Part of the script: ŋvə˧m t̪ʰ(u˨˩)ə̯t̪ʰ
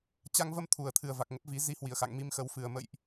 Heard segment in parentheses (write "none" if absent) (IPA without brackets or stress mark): u˨˩